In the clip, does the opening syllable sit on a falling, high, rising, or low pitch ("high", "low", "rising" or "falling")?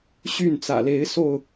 falling